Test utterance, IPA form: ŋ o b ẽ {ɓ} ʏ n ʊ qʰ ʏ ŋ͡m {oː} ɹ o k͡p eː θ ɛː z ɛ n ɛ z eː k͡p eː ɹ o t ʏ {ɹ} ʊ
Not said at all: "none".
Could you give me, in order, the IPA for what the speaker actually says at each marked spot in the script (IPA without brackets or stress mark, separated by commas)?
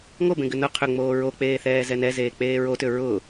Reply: ɡ, oː, ɹ